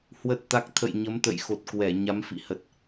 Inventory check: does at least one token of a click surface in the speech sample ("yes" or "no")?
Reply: no